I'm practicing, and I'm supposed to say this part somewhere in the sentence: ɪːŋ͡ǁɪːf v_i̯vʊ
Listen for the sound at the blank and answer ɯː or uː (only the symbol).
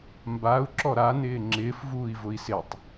uː